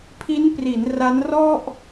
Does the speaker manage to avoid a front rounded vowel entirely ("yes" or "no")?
yes